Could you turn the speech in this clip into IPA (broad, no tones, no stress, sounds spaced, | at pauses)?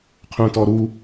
qʰ ũ t ɔ ɾ u